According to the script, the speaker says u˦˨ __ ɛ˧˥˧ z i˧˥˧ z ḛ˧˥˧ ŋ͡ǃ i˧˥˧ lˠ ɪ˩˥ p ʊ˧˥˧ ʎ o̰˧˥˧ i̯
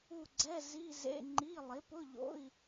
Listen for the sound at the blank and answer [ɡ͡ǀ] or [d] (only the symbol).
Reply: ɡ͡ǀ